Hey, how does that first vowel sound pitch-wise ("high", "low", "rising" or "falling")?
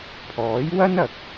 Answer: rising